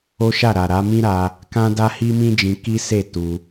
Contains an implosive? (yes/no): no